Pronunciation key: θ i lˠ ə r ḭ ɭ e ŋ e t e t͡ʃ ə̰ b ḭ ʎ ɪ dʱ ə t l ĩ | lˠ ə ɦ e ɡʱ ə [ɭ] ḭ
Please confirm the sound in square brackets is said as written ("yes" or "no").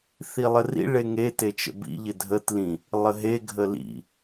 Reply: no